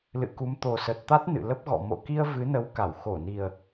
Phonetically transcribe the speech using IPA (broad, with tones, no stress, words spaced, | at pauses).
lɨ̰˧˨ku˨˦m t̪o˨˩sə˨˩t̚t̪a˦˥t̚ nɨ̰˧˨ lə˦˥p̚ɣɔ̰˧˨ mo̰˧˨ki˧ə̯ vɨ˨˦nə˨˦w ka˧˩w xo˧˩ni˨˩ə̯